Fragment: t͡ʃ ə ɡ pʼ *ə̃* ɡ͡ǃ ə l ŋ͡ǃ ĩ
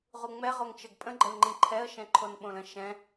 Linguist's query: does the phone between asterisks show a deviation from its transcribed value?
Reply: no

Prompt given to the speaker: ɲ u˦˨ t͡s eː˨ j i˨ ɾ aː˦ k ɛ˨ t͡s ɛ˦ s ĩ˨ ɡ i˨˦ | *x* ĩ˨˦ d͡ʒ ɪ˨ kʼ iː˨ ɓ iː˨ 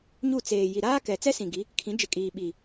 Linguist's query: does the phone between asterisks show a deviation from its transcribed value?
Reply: yes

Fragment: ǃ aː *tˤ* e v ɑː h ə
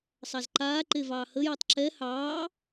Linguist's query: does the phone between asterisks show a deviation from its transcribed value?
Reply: yes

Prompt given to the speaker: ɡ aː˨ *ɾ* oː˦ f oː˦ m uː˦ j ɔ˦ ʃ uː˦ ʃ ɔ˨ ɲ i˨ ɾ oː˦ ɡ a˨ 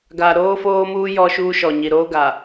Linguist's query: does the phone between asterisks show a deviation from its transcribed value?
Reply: no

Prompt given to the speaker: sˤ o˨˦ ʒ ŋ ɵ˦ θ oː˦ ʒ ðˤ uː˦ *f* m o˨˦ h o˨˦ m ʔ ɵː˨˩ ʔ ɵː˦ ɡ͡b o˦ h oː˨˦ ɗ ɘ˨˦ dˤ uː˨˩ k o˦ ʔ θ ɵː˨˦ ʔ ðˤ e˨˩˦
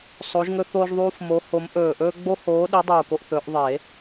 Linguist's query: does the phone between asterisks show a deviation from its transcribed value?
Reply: no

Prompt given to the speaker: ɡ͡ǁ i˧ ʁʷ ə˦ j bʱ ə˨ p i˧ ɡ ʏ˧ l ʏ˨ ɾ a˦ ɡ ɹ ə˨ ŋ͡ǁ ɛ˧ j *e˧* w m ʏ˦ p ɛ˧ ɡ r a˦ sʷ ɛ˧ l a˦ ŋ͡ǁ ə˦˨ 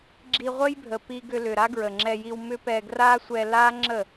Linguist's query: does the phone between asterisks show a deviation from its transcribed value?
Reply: yes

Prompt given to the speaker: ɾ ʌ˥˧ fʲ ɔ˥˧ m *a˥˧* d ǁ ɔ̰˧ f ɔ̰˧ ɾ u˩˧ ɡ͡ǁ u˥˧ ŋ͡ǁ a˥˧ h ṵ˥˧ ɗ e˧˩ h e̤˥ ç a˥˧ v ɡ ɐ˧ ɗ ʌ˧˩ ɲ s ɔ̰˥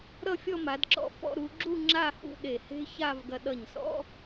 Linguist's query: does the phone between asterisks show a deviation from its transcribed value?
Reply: yes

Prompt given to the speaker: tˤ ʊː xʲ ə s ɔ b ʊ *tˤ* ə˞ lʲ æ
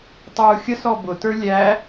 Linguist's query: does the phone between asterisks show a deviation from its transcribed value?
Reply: yes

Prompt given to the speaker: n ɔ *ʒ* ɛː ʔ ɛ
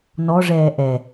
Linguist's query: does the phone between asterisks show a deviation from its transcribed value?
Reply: yes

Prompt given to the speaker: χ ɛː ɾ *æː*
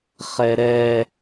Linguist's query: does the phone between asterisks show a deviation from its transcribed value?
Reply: yes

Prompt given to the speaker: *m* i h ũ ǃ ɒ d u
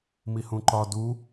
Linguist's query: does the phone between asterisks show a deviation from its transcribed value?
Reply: no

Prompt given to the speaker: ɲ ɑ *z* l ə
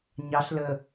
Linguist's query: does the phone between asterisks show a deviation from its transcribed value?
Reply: yes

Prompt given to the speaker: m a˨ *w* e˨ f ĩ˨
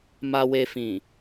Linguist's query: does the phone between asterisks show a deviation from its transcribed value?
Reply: no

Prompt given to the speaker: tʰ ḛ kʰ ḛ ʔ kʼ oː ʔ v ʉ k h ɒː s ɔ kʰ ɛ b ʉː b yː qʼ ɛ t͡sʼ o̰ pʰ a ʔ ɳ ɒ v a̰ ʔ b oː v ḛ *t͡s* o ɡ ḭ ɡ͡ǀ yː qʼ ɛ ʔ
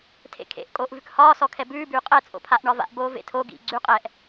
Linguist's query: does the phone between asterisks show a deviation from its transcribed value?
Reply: yes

